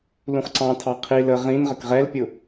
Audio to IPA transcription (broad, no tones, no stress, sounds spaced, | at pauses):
l ũ χ ǀ ɑ̃ tʰ ɑ qʰ i l ə ʁ ĩ n ʁ ə k ʁ ɛ l pʲ ʊ